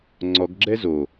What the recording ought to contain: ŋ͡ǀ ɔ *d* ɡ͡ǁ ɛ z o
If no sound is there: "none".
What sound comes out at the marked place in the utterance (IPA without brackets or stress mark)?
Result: ɡ